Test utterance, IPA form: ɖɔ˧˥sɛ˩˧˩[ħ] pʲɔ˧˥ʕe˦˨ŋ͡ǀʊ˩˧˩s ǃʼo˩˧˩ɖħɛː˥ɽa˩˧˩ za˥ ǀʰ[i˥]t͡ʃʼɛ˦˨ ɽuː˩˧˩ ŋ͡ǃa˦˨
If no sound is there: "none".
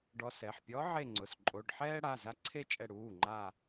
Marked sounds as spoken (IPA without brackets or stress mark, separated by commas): ħ, e˥